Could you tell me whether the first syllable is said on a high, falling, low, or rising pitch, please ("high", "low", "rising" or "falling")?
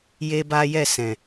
high